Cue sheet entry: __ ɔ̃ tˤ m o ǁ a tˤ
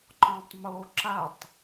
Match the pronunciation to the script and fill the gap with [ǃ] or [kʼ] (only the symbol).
ǃ